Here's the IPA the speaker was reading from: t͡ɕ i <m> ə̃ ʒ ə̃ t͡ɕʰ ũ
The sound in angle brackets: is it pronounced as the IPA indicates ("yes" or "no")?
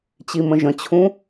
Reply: yes